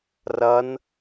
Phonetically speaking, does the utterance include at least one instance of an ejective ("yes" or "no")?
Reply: no